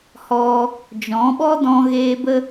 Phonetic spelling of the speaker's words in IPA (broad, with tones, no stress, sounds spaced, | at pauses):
h ɔ˧ | d͡ʒ ɔ̃˨˦ ɓ ɔ˦ d ɔ̃˧ ɣ eː˧ b ə˦